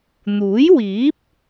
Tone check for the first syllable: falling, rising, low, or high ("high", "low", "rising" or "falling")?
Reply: rising